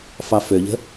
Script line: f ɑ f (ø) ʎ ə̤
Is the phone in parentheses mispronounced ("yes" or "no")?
no